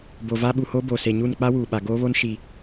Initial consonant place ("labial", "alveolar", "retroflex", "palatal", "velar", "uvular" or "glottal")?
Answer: labial